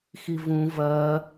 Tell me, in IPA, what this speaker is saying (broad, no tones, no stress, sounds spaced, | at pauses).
x i v ũ v ɐ